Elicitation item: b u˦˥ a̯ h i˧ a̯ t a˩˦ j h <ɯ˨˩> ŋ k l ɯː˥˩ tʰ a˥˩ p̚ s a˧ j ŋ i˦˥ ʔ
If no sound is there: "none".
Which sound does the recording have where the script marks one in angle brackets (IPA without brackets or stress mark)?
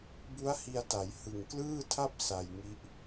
ɯ˨˩